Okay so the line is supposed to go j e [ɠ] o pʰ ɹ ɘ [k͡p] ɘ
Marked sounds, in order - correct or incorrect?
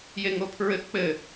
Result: incorrect, correct

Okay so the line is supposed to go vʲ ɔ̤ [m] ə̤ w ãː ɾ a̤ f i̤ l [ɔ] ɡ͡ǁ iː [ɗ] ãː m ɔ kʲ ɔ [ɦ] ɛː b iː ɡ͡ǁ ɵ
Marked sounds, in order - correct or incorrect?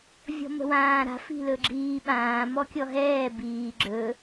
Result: correct, incorrect, incorrect, correct

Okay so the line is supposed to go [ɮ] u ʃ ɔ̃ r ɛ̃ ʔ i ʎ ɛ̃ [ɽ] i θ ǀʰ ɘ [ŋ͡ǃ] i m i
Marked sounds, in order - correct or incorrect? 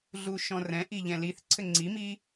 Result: correct, incorrect, incorrect

